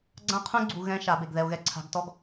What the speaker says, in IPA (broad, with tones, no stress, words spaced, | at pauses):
ɡ͡ǀã˦qʰũ˦ɡ͡ǀu˨ ɣɛ̃˦ ʃa˨˦be˨ɡ ðɛ˨o̯ɣɛ˦ ǀʰa̤˨˦ɡtɔ˦ɡ